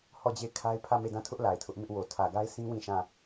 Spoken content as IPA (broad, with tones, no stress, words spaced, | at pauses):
hɔ˦˨d͡ʑe˦˨ɪ̯kʰa˦ɪ̯ pʰä˦˨me˦˨dã˦˨tʰʊ˦ʔ la˨ɪ̯tʰʊ˦ʔ mɪ˦ʔ wo˨ tʰä˨ɡa˦ɪ̯sʰĩ˦ wĩ˦˨ʃã˦˨